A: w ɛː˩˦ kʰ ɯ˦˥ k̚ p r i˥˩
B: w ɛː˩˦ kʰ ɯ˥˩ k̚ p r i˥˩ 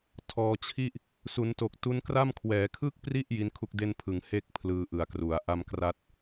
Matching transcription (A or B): B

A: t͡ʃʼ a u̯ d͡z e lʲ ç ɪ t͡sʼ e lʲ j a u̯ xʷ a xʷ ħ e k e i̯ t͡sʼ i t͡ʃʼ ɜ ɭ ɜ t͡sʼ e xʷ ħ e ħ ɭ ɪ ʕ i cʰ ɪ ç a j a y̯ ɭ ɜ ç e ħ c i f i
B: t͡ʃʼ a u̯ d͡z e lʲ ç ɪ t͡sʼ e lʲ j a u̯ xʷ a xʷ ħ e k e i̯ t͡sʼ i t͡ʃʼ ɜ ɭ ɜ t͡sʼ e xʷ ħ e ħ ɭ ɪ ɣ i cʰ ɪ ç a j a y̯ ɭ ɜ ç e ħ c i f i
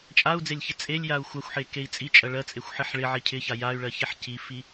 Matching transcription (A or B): A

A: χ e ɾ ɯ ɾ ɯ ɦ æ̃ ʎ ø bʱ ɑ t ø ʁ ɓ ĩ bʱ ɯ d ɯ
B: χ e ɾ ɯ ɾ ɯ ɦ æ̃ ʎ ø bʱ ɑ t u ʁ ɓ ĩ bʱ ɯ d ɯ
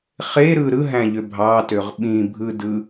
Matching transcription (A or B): A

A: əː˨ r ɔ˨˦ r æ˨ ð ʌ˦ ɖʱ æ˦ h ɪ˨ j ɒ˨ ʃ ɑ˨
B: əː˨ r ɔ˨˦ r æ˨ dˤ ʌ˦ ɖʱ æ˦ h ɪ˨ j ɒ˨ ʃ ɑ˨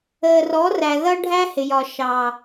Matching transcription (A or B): A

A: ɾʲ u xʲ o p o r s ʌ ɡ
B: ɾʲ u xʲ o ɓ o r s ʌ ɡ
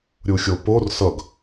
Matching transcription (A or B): A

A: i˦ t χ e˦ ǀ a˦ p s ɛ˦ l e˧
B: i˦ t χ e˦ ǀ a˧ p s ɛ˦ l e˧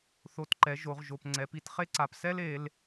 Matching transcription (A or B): B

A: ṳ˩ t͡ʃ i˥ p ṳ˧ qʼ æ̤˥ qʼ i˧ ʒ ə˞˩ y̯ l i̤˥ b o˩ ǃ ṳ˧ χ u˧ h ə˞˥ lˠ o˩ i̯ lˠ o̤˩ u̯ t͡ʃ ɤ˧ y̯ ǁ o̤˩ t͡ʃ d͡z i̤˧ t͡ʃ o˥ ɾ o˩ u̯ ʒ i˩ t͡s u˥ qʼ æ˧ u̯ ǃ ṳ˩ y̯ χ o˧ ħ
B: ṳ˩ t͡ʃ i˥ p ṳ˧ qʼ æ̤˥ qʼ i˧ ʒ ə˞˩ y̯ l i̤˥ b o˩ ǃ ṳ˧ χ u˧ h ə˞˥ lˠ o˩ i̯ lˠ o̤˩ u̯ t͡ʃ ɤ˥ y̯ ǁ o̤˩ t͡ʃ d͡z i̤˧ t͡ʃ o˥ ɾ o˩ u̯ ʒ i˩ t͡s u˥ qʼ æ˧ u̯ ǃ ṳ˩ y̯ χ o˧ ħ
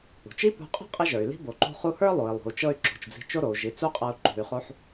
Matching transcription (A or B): A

